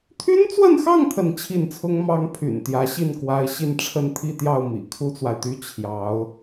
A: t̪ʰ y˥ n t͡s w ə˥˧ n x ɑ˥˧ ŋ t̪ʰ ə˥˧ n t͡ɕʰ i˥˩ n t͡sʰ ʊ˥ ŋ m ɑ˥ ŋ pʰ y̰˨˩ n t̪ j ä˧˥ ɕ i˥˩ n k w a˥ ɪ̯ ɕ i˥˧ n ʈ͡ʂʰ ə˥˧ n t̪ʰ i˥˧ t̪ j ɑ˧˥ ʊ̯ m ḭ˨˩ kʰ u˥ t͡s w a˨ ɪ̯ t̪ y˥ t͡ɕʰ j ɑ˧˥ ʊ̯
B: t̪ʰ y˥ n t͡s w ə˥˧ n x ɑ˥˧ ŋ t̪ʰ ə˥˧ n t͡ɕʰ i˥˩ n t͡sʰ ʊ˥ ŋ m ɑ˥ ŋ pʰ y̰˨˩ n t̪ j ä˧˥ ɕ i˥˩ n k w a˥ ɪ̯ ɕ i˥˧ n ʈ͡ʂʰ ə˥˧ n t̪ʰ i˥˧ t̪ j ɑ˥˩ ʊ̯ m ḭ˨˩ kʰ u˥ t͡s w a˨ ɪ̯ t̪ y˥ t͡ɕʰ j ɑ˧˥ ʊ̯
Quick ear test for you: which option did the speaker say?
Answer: B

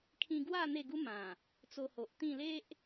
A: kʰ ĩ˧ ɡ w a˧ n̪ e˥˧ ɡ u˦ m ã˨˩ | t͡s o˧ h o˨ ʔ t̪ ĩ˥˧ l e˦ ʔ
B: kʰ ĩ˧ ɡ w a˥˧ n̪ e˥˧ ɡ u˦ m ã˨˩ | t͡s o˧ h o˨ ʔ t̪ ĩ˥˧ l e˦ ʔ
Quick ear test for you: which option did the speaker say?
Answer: B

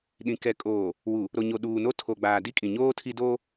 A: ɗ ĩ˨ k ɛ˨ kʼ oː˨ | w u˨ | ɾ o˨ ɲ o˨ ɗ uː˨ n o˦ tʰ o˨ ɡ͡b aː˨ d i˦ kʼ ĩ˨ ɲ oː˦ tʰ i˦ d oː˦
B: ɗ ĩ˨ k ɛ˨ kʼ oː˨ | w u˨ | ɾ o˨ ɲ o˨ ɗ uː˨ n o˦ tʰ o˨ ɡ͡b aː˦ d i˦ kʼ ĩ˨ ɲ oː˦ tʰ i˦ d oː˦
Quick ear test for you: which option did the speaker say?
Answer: A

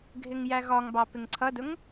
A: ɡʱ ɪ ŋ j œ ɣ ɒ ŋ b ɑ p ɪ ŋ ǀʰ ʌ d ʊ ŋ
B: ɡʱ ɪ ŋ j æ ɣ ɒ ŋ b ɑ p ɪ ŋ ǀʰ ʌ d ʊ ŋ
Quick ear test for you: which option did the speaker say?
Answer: B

